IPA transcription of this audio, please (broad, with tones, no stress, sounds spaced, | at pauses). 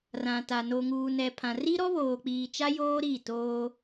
r ã˨ t a˨ n o˨ ŋ uː˨ n ɛ˨ pʰ ã˨ r i˦ ɾ ɔ˦ β oː˨ k͡p iː˨ t͡ʃ a˦ j oː˦ ɾ i˦˨ t oː˦